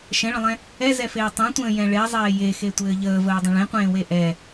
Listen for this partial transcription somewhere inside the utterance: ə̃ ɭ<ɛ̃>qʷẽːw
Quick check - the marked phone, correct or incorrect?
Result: incorrect